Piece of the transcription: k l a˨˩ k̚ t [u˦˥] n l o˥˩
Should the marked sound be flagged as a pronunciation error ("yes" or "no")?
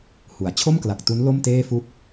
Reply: no